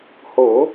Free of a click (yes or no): yes